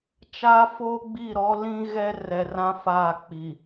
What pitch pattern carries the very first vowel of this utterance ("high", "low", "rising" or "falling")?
high